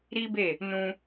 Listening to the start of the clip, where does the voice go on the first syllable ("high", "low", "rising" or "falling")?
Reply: high